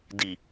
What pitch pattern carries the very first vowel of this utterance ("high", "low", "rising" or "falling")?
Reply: low